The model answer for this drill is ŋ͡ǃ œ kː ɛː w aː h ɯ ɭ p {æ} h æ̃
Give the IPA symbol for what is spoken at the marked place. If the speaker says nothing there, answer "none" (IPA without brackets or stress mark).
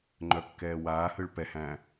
ɛ